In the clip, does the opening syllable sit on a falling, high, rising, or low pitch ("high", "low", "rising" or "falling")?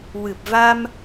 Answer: low